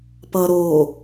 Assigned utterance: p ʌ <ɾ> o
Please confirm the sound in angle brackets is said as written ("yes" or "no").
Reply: yes